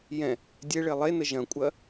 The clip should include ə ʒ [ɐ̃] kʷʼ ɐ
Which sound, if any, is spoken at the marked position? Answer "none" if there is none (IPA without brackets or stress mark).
ɐ̃